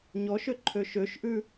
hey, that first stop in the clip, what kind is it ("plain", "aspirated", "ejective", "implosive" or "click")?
click